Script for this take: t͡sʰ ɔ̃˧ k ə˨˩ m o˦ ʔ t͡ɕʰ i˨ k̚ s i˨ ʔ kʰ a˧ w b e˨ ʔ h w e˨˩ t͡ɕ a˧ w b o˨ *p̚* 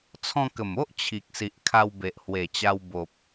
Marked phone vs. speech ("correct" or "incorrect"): correct